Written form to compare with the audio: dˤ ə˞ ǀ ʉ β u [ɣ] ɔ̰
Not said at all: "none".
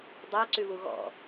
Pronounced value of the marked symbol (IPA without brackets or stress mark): ɣ